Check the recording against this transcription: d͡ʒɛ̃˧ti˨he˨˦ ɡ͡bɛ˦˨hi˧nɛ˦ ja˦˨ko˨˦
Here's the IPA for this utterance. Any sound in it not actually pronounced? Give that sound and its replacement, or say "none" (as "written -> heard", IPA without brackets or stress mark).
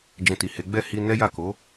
none